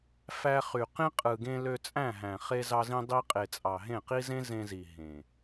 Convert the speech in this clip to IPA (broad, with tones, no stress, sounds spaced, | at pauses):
f æ˧ χ y˨ q ĩ˦ qʼ ɯ˨ ɡ ẽ˧ l ø˧ t͡sʼ æ̃˦˨ ɦ æ̃˨ χ e˧ z ɑ˧ z ĩ˧ dˤ i˧ qʼ e˨ t͡sʼ ɑ˨ ɦ ẽ˦˨ q i˦ z ẽ˦ z ẽ˧ z i˨ ɦ ẽ˨